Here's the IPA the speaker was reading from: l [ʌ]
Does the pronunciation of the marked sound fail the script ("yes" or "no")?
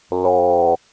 yes